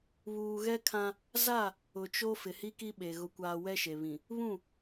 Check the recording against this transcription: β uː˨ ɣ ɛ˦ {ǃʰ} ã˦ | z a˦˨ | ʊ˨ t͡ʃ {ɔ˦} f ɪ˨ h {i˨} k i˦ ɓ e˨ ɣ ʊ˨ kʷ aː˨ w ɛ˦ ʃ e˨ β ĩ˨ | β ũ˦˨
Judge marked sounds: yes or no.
no, no, no

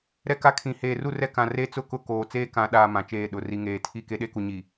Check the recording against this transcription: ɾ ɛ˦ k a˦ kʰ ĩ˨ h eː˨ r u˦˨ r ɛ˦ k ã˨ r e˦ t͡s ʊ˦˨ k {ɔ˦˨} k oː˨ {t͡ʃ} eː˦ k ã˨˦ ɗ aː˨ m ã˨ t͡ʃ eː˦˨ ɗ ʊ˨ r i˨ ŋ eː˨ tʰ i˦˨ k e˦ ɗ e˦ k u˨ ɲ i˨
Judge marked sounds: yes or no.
no, no

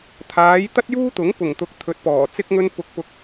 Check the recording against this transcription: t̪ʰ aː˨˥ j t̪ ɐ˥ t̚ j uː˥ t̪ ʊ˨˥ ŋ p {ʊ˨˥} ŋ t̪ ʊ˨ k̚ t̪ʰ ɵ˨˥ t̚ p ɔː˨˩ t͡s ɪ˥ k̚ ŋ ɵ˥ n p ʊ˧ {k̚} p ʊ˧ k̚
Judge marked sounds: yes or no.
no, yes

